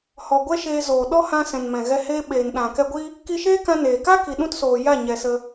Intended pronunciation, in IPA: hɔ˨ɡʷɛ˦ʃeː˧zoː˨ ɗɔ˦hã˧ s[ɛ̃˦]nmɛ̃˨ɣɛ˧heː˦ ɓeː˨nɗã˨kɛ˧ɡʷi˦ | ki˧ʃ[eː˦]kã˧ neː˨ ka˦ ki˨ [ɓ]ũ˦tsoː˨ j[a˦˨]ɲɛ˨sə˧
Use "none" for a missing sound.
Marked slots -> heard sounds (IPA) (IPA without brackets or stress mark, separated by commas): ɛ̃˨, eː˦, ɗ, a˦˨